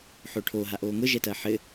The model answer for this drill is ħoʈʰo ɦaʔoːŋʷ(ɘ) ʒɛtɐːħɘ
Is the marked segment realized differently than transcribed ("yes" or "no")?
yes